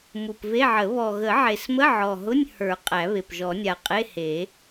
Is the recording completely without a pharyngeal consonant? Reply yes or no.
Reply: no